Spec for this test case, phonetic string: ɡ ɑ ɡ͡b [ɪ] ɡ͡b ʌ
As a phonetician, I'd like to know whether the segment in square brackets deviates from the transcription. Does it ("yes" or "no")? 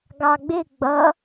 no